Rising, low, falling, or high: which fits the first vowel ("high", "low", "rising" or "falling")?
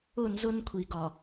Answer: falling